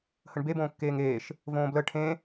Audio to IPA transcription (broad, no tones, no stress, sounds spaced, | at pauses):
h ə ɳ b e b õː kː eː ŋ eː ʃ | v õː b l ə ʈʰ ẽ